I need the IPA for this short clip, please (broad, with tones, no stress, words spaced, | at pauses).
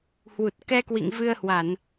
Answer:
hwu˨˩t̚kɛ˧kwḭ˧˨ŋ vɨ˧ə̯hwa˧˩˨n